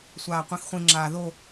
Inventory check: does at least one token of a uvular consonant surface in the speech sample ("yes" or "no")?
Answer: yes